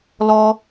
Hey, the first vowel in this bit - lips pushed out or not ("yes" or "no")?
yes